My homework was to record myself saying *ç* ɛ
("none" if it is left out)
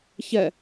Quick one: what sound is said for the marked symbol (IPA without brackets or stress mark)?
ç